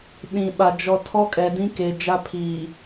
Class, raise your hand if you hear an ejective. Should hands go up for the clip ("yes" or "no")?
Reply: yes